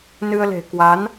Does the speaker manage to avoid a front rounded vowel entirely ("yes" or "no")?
yes